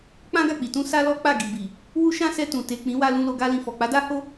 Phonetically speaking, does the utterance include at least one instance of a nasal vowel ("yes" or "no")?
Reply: yes